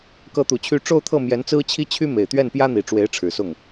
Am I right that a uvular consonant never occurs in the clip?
yes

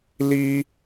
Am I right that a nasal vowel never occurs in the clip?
yes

